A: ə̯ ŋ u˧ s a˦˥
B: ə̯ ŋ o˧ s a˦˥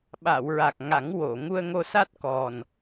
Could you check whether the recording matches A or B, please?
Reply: B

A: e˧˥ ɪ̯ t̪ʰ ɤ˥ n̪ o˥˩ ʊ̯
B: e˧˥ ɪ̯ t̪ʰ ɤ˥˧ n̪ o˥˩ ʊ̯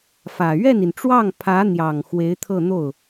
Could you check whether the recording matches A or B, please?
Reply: B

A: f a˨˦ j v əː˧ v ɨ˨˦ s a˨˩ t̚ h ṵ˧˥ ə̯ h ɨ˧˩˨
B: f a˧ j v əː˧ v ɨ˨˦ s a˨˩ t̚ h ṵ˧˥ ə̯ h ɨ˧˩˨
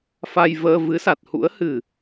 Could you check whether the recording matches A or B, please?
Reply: B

